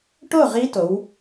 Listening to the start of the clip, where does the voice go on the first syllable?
falling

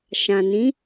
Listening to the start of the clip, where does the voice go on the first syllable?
low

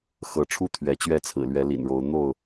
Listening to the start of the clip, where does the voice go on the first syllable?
rising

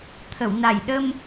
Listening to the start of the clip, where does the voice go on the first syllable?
low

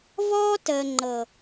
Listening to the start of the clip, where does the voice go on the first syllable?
high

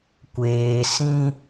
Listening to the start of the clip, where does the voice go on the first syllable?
low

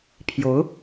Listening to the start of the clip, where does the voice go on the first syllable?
rising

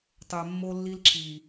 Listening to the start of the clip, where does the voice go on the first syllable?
low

